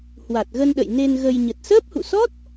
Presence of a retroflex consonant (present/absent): absent